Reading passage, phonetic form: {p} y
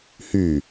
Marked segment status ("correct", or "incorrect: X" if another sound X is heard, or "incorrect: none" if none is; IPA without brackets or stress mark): incorrect: h